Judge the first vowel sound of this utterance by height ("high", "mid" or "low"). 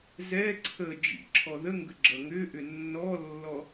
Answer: mid